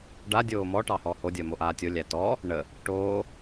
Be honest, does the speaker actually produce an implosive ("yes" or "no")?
no